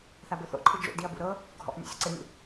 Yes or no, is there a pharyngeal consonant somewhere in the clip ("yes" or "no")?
no